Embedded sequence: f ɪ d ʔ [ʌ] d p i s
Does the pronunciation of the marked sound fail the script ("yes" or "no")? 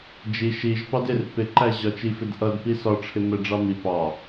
no